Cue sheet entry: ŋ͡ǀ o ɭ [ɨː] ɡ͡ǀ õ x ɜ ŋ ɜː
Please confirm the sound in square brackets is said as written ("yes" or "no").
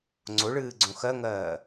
yes